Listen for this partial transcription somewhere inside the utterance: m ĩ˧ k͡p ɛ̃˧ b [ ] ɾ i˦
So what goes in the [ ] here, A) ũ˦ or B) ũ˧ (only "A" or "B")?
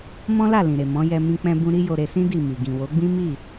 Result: B